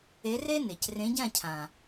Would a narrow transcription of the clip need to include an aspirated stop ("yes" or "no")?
yes